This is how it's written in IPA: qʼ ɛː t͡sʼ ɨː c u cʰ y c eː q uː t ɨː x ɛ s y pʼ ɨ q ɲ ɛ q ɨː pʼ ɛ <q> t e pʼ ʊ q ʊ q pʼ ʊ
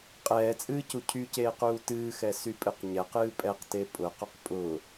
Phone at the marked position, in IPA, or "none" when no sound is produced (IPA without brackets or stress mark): q